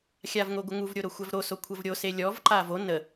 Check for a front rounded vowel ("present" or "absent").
absent